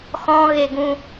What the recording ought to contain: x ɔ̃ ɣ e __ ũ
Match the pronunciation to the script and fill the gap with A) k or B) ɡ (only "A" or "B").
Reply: B